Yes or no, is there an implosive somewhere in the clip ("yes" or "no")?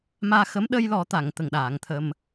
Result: yes